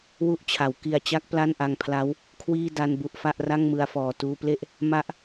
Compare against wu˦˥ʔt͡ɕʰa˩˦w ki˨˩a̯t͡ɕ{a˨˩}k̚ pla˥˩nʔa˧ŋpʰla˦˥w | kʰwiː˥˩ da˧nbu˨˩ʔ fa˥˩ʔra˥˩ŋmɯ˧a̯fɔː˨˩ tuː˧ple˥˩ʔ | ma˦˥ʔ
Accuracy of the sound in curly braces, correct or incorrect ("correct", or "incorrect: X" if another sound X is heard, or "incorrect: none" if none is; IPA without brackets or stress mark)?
incorrect: a˦˥